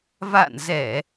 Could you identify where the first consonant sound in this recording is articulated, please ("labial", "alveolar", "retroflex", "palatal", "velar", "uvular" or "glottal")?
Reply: labial